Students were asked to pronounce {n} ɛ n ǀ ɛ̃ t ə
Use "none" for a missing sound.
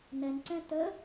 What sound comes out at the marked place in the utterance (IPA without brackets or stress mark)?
n